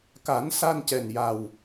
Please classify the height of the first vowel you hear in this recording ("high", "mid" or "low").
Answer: low